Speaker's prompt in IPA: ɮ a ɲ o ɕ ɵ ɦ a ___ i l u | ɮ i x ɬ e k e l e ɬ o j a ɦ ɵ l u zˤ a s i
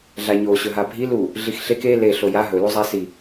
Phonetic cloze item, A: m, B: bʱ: B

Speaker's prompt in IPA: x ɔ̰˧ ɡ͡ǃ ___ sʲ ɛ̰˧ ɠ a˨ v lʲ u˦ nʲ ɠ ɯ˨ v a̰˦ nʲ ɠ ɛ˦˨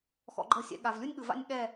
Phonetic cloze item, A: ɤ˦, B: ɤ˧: A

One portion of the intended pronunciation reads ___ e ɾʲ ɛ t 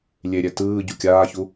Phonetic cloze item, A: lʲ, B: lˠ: A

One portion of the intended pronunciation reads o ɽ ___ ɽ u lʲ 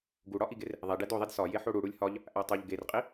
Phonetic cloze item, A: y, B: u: B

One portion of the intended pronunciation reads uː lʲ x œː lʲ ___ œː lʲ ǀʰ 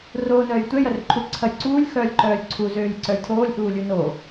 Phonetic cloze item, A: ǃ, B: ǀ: A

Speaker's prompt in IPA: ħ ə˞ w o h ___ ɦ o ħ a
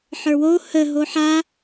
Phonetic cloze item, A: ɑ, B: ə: B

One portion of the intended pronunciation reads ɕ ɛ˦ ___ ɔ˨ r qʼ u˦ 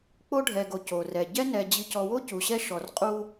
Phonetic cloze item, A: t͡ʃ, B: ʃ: B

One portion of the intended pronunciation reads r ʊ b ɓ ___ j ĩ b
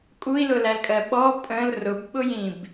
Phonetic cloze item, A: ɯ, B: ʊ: B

